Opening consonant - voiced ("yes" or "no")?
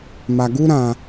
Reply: yes